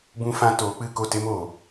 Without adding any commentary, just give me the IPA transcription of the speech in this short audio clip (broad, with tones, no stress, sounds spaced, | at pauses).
b ũ˦ f ã˦ t oː˨˦ k͡p ɨ˦˨ k o˦˨ t e˦ m oː˨